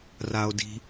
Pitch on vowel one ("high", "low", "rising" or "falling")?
low